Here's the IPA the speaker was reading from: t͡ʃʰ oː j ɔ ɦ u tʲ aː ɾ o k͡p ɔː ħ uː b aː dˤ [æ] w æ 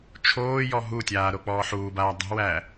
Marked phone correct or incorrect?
incorrect